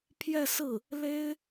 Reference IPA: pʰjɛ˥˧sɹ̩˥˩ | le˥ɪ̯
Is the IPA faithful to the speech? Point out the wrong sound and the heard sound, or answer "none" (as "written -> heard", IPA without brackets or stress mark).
none